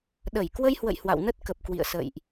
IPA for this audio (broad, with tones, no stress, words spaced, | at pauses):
ɗə˧˩j kwə˧jhwə̰˧˨j hwa̰˧˨wnə˦˥t̚ kə˨˩p̚ kwḭ˧˨ə̯sə̰ː˧˨jʔ